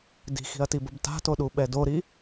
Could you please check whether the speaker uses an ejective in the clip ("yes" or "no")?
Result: no